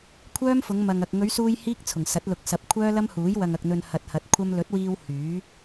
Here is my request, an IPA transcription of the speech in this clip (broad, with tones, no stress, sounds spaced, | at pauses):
kʷʰ œː˥ m f ʊ˨˧ ŋ m ɐ˨ ŋ ɐ˨ k̚ ŋ ɵ˨˧ ɥ s uː˧ j h iː˥ k̚ t͡sʰ ʊ˨˩ ŋ s ɐ˨˥ t̚ l ʊ˨˥ k̚ s ɐ˨˥ p̚ kʷʰ œː˥ l ɐ˥ m h uː˨˥ j w ɐ˨ ŋ ɐ˨ k̚ n̪ ɵ˨ n h ɐ˨ t̚ h ɐ˨˥ t̚ kʷʰ ɐ˧ m l ɵ˨˥ t̚ w iː˧ w h yː˨˥